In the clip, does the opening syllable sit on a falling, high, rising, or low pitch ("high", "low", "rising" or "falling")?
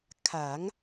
rising